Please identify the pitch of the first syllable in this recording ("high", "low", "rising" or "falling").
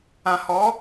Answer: low